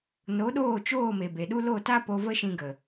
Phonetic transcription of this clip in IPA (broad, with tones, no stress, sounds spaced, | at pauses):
n o˨˦ ɗ oː˦˨ t͡ʃ oː˦˨ m e˨ b e˨ ɗ u˦ l o˦˨ t a˦ p o˧ v ə˦ ʃ ĩ˧ ɡ ə˨